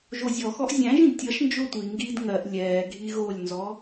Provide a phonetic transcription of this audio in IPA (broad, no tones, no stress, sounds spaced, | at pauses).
ʒ o zʲ ɔ x ɔ ʔ zʲ æ̃ ʒ ĩ d tʲ ʌ ʃ n d͡ʒ o tʷ i ŋ ɡ iː d ŋ ɜ ʔ lʲ ɛː ɡʱ i ɣ o lʲ n z ɔ